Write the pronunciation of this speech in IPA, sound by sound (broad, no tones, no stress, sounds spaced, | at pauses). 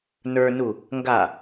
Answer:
n ə˞ n u | ŋ ɡ a